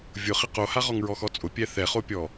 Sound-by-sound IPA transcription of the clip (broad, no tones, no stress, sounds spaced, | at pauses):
vʲ ʊ χ ɪ q o h a ʁ ɔ ŋ ɹ ɔ x ɔ t͡sʼ ʊ pʲ ɛ θ ɛ χ o pʲ ɔ